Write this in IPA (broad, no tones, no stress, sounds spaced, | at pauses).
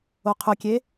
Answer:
o qʰ ɵ kʲ e